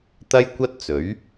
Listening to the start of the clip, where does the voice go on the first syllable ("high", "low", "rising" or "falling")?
high